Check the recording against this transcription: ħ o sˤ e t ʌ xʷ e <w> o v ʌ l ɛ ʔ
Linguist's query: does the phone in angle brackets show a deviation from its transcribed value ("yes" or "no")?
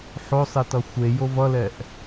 yes